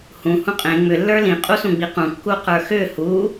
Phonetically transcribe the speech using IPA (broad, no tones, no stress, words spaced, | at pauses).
hũ hũqʼẽ ŋ͡mʏ lːə˞lĩ qʼusũɡ͡biqũ kːuqə˞xʏ hu